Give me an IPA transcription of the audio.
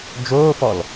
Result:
d͡ʒ oː f ɔ l

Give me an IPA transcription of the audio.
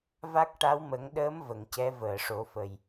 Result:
v a˦˥ k̚ ʈ a˧˥ w m ə˨˩˦ ŋ ɗ əː˧˥ m v ə˨˩˨ ŋ c ɛ˧˥ v əː˨˩˨ ʂ o˨˩˦ f ə˨˩ j

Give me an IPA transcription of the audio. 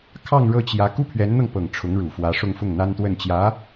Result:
kʰ ɑ˥˧ ŋ ɻ ɤ˥˩ t͡ɕ j ä˧˥ k u˥ pʰ ɥ ɛ˧˥ n n̪ ɤ˧ ŋ p ɤ˨˩ ŋ ʈ͡ʂʰ ʊ˧˥ ŋ ɻ u˨˩ f w ä˧˥ ʂ ʊ˥˧ ŋ f ʊ˥˩ ŋ n̪ a˥ n t̪ w ə˥˩ n t͡ɕ j ä˧˥

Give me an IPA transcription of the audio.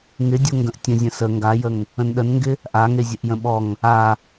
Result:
ŋ ɪ dʲ o ŋ ɡ ə̃ ʔ tʲ ə̃ zʲ ə̃ s ə ŋ ɡ a j ə ŋ | ə̃ n ɗ ə n ŋ ɡ ɪ | ʔ a ŋ e zʲ ə ʔ j ə̃ ɓ ɔ ŋ | a

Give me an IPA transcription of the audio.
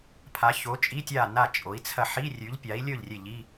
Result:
pʰ a˩˥ ç o˩˥ t͡ʃʼ i˧˥˧ tʲ a˥˩ n a˥˩ t͡ʃʼ o˩˥ i̯ t͡sʰ ɐ˥˩ ħ i˧˥˧ rʲ ʉ˩˥ ʎ pʲ a˩˥ i̯ lʲ ɵ˥˩ ʎ rʲ e˥˩ ʎ i˧˥˧

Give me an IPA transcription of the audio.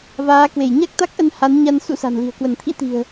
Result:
v aː˨˦ k w e˧˩ j ɲ a˦˥ k̚ t̪ a˦˥ k̚ ʔ ə˧ n h a˨˦ n ɲ a˧ n s ṵ˧˥ s a̤˨˩ n l i̤˨˩ ə̯ k w ə˧˩ n t̪ʰ ḭ˧˥ t̪ i̤˨˩ ə̯

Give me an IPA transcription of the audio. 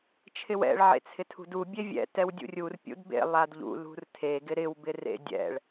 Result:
t͡ʃʰ ɪ w ɛ̰ ɭ ʕ ḛ t͡sʰ ɪ tʰ ṳ d u bʲ e vʲ ɛ̰ t ɛ w dʲ ṵ rʲ u r pʲ ṵ d b ḛ lˠ a d ʎ ṵ l ṳ r tʰ e ɡ ɪ ɾ ɪ w b ɪ r ḛ dʲ ɛ̰ ɭ

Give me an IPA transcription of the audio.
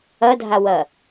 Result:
ɐ dʱ a w ɐ

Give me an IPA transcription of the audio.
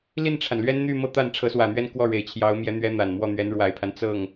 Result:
l i˥˩ n ʈ͡ʂʰ a˩ n l ɥ ɛ˥ n n̪ y˥˧ m ɤ˥˧ t̪ a˥˩ n ʈ͡ʂʰ ɤ˧˥ s w ä˨˩ n̪ ɥ ɛ˥˧ n k w ɔ˥˩ ɻ e˨˩ ɪ̯ t͡ɕʰ j ɑ˧˥ ʊ̯ m j ɛ˧˥ n̪ ɥ ɛ˧˥ n̪ a˨˩ n m w ɔ˥˩ n̪ ɥ ɛ˧˥ n ɻ w a˨˩ ɪ̯ pʰ a˦ n t͡s ɤ˥˩ ŋ

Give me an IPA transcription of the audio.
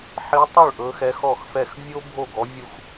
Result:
ħ i˧˥ tˤ u˥˩ ɭ ʔ ɵ˧˥ x ɛ˧˥ x ɔ˥˩ x f ɛ˥˩ x vʲ o˥ bʱ o˥˩ ɡ ɔ˧˥ vʲ u˥ x

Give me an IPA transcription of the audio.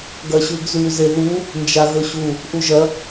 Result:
ɡ ɐ ɕ ʉ ɡ z ʉ z e ð u | n d͡ʒ a ɣ ɵ ɕ u | ʔ u ʒ ɐ

